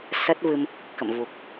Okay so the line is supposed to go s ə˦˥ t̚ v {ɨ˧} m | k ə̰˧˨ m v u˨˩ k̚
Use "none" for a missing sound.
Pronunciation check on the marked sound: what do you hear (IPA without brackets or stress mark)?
ɨ˧